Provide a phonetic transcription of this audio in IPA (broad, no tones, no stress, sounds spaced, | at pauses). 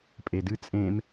pʼ e d ɨ t͡sʼ ẽː m